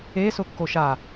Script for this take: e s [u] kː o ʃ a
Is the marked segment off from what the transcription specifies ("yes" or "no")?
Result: yes